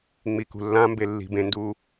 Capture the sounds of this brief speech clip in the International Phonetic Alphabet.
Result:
ŋ͡m i k ṳ lː ã m b e lː i̤ b ẽ n d uː

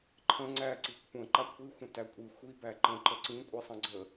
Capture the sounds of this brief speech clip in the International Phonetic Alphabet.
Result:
ǃʰ ə̃ ŋ͡ǀ æ ǀ i kʷʰ ə̃ ǃ a kʷʰ i xʷ ə̃ t æ kʷʼ i xʷ i b æ ǃ ə̃ ǃ ə ǀ ĩ kʷʼ i sˤ ə̃ ɡ͡ǀ ə

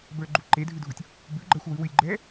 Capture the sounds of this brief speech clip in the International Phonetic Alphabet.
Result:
b ə˞ ɡ͡ǃ u ǃ e dʱ ʉ dʱ u tʲ | b ʉ ɡ͡ǃ ɜ xʷ w ʉ w ʉ lʲ ɡ͡ǃ ɛː

